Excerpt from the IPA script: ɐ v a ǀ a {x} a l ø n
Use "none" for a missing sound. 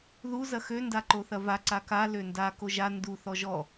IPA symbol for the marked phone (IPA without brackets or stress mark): k